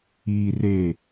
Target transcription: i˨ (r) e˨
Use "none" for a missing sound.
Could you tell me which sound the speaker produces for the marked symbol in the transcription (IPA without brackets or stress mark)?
r